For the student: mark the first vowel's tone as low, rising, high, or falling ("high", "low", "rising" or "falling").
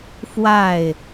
falling